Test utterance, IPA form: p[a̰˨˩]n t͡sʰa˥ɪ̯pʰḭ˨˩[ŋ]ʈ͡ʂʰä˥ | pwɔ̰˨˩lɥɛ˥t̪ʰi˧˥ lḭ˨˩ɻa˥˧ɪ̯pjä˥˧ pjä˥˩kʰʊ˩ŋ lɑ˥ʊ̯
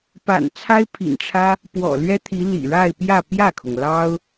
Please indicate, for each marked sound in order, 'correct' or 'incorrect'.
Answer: correct, incorrect

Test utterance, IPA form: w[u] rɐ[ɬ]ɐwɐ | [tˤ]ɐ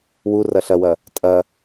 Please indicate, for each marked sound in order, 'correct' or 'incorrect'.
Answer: correct, correct, incorrect

